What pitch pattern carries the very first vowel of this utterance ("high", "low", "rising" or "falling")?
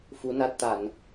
rising